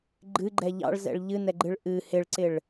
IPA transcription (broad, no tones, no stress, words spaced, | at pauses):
ɡ͡ǃɨɡ͡ǃɛ ʎɑ̰ɭzɛ̰ɭ ʎɨnɛɡ͡ǃɨɭ ʔɨ hɪɭǀɪɭ